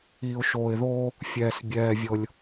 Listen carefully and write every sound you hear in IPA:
iː˨ ʊ̯ ʃ oː˨ ɪ̯ ð oː˦ | fʲ ɛː˨ s bʲ ɛː˨ vʲ ɤ˨ lʲ

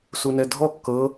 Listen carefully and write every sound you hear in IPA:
s u n ɛ dʱ ɔ kː ɤ

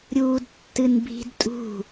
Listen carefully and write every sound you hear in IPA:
ɾʲ uː d tː ɨ n bʱ i̤ d tʼ ṳ

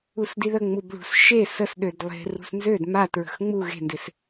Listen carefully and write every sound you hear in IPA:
u s d i ð ə ŋ͡m u b ɭ ṳ s ʃ e s ə s ɗ ø d lˠ e̤ r ṳ s n z ø d m a t ɹ ə̤ x ŋ͡m u ɣ e̤ n d ɪ s

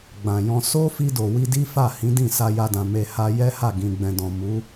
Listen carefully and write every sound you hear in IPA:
ɡ͡b ã˨ j ɔ̃˧ s o˦ f i˧ d o˨ w i˧ d i˦ f a˦˨ h ĩ˨˦ d ĩ˦˨ s a˧ j a˧ d ã˨ m e˧ h a˧ j ɛ˦ h a˦˨ ɡ ĩ˨ ɡ͡b ɛ̃˨ d ɔ̃˨ m u˨˦

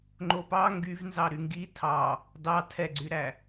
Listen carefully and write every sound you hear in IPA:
ŋ͡ǃ o p ɑ ŋ ɡ y v n z ɑ ɾ y ŋ ɡ i tʰ ɑ | d ɑ tʰ ɛ ɡ͡ǀ y ɾ æ

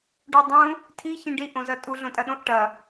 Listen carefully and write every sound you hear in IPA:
ɖ o dˤ ũ | tʰ i ç ĩ ɖ i ʔ õ z ɐ tʼ u ɮ õ tʼ ɐ ɗ õ ʔ ʈ ɐ

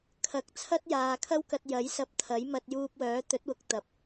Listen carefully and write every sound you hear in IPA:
kʰ ɐ˨˥ k̚ t͡sʰ ɐ˥ t̚ j aː˨ kʰ ɐ˥ w k ɐ˧ t̚ j ɐ˨˥ j s ɐ˧ p̚ t̪ʰ ɐ˨˥ j m ɐ˧ t̚ j uː˧ p̚ w œː˨˥ t̪ ɵ˨˥ t̚ w ʊ˨˥ k̚ t̪ ɐ˨˥ p̚

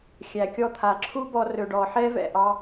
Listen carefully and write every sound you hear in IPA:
xʲ æ˨ kʲ ɔ˧ t̪ʰ a˨ ǁʰ u˦ b ɔ˧ r ɵ˨ ɖ ɔ˨ ħ ɛ˧ v ɛ̰˨ ʔ ɑ˧

